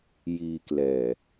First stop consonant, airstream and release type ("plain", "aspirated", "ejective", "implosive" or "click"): plain